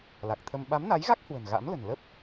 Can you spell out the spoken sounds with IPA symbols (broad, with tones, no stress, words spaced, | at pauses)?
la˨˩k̚t̪ʰə˧m ɓa˨˦mna˨˦jɣa˦˥k̚ hwə̤˨˩nɣa̰˧˥mlə̤˨˩n lə˦˥p̚